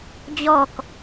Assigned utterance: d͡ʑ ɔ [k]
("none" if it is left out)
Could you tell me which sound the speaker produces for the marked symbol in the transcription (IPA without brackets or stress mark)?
k